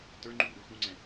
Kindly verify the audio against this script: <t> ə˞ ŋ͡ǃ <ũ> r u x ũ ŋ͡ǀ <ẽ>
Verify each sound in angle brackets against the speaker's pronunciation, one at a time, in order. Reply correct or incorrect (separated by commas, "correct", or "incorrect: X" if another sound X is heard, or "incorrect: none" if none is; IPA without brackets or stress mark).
correct, incorrect: u, incorrect: ɛ̃